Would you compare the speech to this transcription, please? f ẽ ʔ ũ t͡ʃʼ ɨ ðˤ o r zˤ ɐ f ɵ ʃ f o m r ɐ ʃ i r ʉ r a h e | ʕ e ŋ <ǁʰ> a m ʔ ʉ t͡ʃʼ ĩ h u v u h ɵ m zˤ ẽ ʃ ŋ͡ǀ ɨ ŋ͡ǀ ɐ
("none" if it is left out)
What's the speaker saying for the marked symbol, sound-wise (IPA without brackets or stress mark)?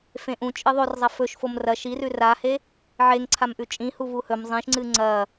ǀʰ